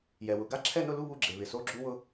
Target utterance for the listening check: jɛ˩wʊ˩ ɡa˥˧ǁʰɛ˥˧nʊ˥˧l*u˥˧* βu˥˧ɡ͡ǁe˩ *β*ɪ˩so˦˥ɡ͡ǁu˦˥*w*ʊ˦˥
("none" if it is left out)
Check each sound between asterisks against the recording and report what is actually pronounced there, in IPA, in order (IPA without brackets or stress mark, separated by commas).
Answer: u˥˧, β, w